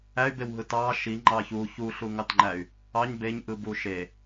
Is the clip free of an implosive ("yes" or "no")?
yes